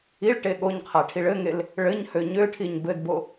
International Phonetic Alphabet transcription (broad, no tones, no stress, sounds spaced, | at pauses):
i ɭ ʈ e ɠ o ɲ qʰ a ʈʰ i ɭ ɘ ŋ e l | ɭ ɘ ɲ h ø ɲ ø ʈʰ i ɲ b ɘ d b o